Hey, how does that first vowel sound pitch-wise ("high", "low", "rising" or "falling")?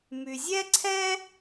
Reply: low